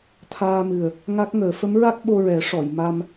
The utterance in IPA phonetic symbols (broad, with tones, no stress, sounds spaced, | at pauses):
t̪ʰ aː˧ m ɨ˨˩ ə̯ | ŋ a˦˥ k̚ ŋ əː˨˩˦ f ə˧˥ m ɹ a˦˥ k̚ ɓ o˧ ɹ ɛ˨˩˦ ʂ ɔ˨˩˨ j m a˧ m